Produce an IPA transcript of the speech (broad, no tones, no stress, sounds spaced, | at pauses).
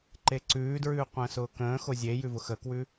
ǃ e ǀ ʉː d ɹ ʉː qʷ ə̃ː s ʊː k ə̃ː x o zʲ e j ʉ v ʊ x ə k w ʉ